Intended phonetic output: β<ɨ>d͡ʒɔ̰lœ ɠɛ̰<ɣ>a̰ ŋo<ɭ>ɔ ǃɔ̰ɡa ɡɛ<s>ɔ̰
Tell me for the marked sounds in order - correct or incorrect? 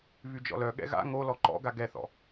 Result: incorrect: y, correct, incorrect: l, incorrect: θ

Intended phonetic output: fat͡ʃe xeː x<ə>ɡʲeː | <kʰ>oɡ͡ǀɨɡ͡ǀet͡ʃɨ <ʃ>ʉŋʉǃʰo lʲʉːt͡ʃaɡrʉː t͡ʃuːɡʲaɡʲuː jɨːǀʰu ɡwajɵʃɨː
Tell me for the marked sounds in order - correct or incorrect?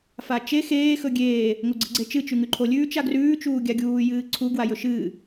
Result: incorrect: ɵ, incorrect: ŋ, incorrect: t͡ʃ

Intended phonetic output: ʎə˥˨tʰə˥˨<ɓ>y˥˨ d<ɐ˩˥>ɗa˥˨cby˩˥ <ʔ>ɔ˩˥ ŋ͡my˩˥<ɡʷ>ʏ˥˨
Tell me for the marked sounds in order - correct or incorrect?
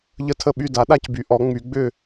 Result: correct, incorrect: a˩˥, correct, incorrect: ɡ͡b

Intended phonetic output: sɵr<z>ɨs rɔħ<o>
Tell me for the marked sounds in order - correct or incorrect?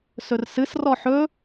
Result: incorrect: s, incorrect: ɵ

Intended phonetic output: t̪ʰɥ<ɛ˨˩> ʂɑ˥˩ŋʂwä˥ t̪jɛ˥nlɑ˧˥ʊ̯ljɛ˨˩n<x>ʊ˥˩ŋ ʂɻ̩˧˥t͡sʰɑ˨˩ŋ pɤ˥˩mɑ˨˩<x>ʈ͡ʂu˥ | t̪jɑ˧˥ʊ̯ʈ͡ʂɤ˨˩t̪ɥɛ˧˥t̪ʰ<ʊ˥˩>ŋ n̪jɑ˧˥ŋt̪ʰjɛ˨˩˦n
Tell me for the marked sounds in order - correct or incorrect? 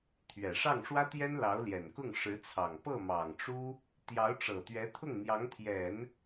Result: correct, incorrect: k, incorrect: ŋ, correct

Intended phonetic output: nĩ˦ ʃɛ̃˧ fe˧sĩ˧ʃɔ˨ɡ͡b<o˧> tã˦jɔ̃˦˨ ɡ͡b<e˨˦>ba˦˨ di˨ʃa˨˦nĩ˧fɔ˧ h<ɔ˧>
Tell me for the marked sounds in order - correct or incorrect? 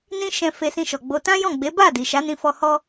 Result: correct, correct, correct

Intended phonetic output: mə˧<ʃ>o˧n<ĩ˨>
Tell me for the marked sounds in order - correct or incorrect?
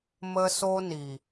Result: incorrect: s, incorrect: i˨

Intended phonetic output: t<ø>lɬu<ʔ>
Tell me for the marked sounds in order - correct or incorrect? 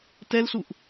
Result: incorrect: ɛ, correct

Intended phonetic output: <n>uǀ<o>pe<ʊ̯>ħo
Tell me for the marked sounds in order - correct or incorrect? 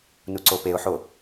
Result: correct, correct, correct

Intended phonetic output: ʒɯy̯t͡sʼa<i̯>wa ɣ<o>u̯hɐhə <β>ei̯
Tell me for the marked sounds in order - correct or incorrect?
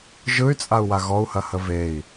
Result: incorrect: u̯, incorrect: ɔ, incorrect: v

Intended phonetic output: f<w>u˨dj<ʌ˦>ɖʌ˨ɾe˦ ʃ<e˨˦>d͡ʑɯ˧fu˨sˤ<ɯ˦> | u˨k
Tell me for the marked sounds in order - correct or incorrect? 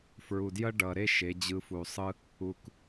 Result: incorrect: ɹ, correct, correct, correct

